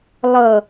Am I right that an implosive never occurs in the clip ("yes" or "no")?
yes